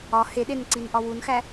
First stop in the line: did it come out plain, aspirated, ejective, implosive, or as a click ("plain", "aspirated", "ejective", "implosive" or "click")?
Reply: implosive